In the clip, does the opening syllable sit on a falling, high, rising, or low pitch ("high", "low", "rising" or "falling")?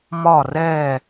falling